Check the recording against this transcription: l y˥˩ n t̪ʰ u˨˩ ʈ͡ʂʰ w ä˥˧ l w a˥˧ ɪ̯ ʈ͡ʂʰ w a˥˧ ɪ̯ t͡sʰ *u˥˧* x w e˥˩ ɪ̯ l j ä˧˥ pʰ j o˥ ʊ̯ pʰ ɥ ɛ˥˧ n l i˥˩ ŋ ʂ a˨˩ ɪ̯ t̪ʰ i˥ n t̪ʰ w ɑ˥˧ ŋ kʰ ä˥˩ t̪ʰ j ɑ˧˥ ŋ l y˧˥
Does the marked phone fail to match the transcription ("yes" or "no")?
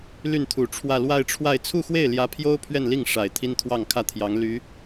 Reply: no